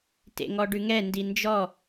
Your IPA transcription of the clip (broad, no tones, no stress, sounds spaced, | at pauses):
t ḛ ŋ ɔ ɖ ʉ ŋ ɛ n d i n d͡ʒ ɔ